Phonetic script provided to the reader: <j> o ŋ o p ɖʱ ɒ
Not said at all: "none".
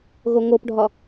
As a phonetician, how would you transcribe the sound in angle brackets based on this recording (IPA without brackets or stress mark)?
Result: ɣ